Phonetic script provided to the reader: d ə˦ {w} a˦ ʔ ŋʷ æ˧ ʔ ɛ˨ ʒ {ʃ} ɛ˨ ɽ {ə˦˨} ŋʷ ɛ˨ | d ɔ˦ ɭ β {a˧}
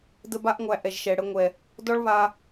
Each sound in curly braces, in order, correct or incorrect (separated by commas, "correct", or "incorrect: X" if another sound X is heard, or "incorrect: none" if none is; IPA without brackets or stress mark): incorrect: b, correct, incorrect: ə˨˦, correct